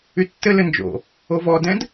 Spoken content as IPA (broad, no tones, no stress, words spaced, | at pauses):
ytːɘ lɘnd͡ʒo̰ | ovɔdɛ̃d